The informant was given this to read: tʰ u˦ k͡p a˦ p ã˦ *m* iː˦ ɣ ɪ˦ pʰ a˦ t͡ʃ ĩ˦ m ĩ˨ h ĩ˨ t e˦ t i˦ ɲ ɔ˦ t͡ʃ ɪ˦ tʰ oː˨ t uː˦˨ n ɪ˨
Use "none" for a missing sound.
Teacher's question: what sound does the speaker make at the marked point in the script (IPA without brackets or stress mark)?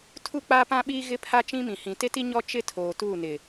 ɓ